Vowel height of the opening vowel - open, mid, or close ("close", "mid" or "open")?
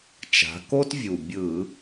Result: open